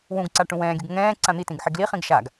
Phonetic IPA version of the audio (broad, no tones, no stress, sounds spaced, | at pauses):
w ũ ɡ ǀ a ʈ ũ w ɛ̃ː ɡʲ u ɡ ŋ ɛ̃ː ǀ ã n̪ i t ĩ ɡ ħ e ɡ l i χ ĩ ɡ ʃ a ɡ